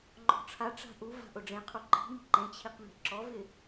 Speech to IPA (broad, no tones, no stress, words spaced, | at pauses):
ŋ͡ǃɔ̤ʈ͡ʂʰaʈ͡ʂa̤ ʔuva̤ ʔʊɖ͡ʐẽqʰo ǃi̤mi̤ ǃẽt͡ɕʰiq me̤ǁɔvɪ